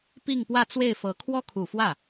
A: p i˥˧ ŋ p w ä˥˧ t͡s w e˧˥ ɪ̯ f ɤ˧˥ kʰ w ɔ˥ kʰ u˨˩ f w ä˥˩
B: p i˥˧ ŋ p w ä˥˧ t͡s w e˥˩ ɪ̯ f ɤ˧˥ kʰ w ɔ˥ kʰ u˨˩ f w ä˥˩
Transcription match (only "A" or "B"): B